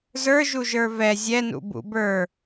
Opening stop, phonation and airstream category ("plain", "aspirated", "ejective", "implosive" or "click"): plain